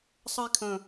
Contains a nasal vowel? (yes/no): yes